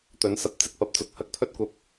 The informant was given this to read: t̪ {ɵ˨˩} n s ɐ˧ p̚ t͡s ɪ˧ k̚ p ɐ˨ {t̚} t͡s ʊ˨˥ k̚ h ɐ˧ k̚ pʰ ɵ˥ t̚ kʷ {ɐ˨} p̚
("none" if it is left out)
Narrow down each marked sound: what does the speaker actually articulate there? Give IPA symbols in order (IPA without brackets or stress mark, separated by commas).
ɵ˨˥, p̚, ɐ˧